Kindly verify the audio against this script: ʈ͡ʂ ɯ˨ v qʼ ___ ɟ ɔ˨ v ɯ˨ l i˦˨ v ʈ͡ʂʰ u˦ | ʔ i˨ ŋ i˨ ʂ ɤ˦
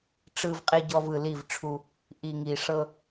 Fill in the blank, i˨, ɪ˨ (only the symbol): i˨